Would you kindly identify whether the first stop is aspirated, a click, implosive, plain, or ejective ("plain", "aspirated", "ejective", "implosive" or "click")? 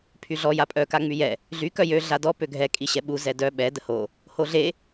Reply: aspirated